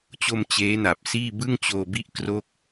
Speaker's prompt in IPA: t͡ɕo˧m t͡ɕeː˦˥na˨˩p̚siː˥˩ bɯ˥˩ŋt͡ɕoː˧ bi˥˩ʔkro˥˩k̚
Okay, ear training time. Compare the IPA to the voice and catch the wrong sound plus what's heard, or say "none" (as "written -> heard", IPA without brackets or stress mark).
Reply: none